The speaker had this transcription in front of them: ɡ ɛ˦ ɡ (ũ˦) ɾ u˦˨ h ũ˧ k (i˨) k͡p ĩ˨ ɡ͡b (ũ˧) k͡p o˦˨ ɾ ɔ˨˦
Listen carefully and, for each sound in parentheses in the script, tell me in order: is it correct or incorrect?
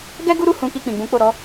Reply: incorrect, incorrect, incorrect

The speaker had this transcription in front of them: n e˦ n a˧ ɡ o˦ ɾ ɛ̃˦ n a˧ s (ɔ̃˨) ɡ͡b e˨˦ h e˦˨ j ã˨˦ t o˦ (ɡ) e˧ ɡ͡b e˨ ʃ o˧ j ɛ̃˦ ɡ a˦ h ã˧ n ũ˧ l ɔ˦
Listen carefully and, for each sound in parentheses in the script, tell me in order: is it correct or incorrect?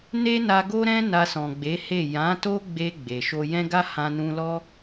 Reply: correct, incorrect

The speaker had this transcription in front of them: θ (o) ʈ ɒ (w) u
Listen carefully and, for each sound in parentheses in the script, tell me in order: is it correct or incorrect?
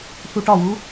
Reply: incorrect, correct

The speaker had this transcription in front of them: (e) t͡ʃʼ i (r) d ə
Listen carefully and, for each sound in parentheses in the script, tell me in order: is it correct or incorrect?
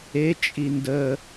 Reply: correct, incorrect

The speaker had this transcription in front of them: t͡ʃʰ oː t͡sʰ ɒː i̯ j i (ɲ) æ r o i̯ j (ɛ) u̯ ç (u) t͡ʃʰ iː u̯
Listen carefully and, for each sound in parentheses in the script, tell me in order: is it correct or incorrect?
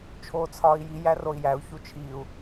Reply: incorrect, incorrect, correct

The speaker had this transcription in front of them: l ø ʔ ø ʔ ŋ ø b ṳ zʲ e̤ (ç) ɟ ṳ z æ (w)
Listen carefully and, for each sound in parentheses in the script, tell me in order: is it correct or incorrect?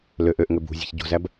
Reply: correct, incorrect

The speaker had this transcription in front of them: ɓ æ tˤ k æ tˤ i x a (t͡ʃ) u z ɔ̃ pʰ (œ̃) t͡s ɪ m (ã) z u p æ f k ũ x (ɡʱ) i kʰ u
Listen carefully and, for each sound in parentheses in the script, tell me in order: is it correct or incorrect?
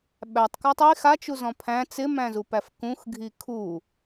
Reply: correct, incorrect, incorrect, correct

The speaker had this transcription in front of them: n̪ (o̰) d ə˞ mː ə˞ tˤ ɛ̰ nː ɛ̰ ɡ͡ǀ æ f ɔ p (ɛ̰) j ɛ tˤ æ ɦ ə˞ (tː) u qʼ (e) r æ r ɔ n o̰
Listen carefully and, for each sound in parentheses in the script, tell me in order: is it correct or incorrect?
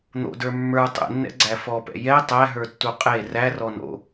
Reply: correct, correct, correct, correct

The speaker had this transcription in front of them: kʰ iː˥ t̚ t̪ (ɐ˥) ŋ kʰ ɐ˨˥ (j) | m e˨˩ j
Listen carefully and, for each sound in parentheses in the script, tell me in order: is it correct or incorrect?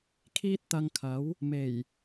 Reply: incorrect, incorrect

